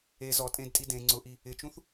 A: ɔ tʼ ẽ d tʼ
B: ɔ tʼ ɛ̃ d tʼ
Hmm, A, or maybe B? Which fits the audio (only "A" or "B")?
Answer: A